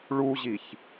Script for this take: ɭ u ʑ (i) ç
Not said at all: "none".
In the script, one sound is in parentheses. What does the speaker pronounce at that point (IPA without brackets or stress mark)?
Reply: i